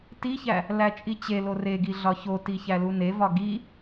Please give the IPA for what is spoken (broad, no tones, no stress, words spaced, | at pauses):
tiçæ | læt͡ʃʼit͡ɕelo reɡi ɮɒçoti çælunevɒ ɡi